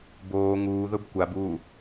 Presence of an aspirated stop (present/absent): absent